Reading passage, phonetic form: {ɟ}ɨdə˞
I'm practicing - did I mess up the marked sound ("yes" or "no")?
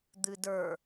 yes